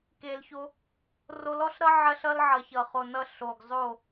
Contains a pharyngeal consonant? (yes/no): yes